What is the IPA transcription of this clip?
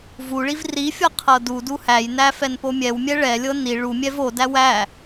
v u ɭ i v r i fʲ ʌ qʰ ɤ d u d u h æ j n æ f ɛ n p o mʲ ɛ w mʲ ɛ ɭ ɛ lʲ ɤ n i ɭ u mʲ ɛ v o d æ w æ

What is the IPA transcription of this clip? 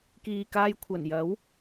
k iː˨ k aː˧ j kʷʰ ɐ˨˩ n j ɐ˨˥ w

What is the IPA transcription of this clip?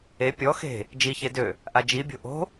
e pʲ ɔ x e̤ | d͡ʒ i ç e d ø | ʔ a d͡ʒ i bʲ o̤ ʔ o̤

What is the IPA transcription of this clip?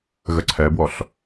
ɣ ə ǀʰ ɛ b w ɔ ɬ

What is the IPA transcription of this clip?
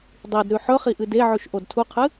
dˤ i d ɾ ʉ ħ ɵ χ i ʔ ɨ d e ʕ ʉ ʃ ʔ o d tʰ u qʰ ɨ

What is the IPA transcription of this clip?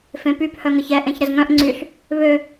f ẽ p y p h œ ŋ ə ç ɛ ʔ ẽ ç ɾ ə z ŋ œ̃ ʔ ŋ͡ǀ y ɬ | β ø

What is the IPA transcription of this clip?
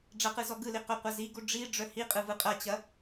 ɖ͡ʐ ɐ q ɯ z ɔ ɡ ɯ l i q œ qʷ ɐ z i ɡ u ɖ͡ʐ i ɖ͡ʐ œ h i qʼ ɯ v ɯ qʼ ɐ t͡ɕ ɐ

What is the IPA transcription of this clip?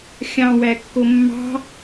xʲ ɑ̃ w æ kː o mː ɑ̤

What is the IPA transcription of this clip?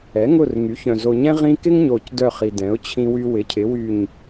ɛ˩˥ ŋ ʊ˦˨ r ŋ y˩˥ ç œ̃˨ z o˨ ɲ ɛ̃˦ ʁ ĩ˦ k ɪ˦ ŋ ɲ o˨ c d œ˦˨ χ i˨ d ɛ̃˩˥ ʊ̯ t͡ɕʰ ĩ˦ w y˦ w ɪ˩˥ cʰ ɪ˩˥ w y˦˨ ɲ

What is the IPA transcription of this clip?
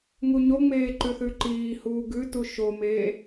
ŋ u ɲ o ŋ͡m eː ǃ ʉ θ ʉ ǃ iː h uː ɡ ʉ t u ʃ o m eː

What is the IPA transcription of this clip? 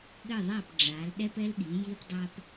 ɠ ɘ˥˩ ðˤ a˥˩ p ɖ͡ʐ a˩˥ l ɗ ɛ˥ p ɛ˥ l ɠ i˩˥ j i˥ p dˤ a˥ p

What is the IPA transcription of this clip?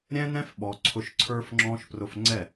ɾʲ ɛ̃˦ n ɛ̃˦ f ɓ ɔ˨ ǀʰ ʊ˧ ʃ ǀʰ ə˞˦ f ŋ͡ǁ ɔ̃˦ ʃ p r ʊ˧ f ŋ͡ǀ ɛ˦˨

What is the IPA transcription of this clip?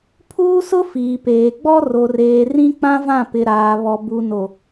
pʰ uː˦ s ʊ˦ f iː˨ p eː˨ ɡ͡b ɔ˦ r o˨ r eː˨ r ĩ˦ k͡p ã˦ v ã˦˨ p ɪ˨ ɾ aː˨ β ɔ˨ b u˨ n o˨

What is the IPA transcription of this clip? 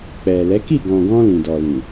k͡p ɛ˨ l ɛ˨˦ k i˦˨ ɡ ɔ̃˨ ɡ ɔ̃˧ l ĩ˨ d ɔ˨ l ĩ˨

